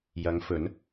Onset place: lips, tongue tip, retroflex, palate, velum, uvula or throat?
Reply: palate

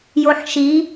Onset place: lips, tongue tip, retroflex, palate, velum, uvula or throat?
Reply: palate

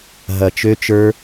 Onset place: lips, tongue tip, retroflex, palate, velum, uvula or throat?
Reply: throat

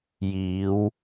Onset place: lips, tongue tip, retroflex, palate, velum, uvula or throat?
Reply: palate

